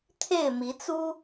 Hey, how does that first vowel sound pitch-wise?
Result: falling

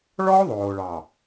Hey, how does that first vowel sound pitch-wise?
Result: high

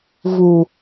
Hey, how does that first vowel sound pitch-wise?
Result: low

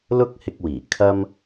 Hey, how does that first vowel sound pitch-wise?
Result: high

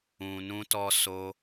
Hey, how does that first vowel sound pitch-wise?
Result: low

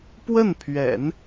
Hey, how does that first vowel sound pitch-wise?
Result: falling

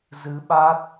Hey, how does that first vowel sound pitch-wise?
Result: rising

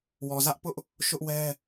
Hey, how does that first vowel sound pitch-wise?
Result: low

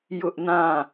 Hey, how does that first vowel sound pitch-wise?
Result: high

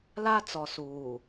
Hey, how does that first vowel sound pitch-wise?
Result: high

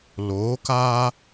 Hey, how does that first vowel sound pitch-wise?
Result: rising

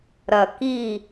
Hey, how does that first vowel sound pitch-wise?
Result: low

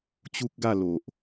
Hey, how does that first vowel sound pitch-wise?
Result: high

